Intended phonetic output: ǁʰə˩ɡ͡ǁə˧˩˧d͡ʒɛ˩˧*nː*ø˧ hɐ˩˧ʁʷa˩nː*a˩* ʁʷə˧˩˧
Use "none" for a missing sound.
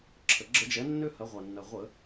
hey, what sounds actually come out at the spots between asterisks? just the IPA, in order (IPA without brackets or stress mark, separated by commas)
nː, ɐ˩